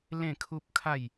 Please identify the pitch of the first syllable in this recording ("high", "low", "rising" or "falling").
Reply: falling